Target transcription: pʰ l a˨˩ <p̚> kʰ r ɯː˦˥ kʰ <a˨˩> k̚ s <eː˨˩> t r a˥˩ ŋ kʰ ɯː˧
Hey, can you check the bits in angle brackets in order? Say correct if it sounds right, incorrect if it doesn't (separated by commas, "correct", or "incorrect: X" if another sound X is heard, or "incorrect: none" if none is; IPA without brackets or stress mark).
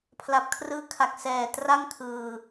correct, correct, incorrect: ɛː˨˩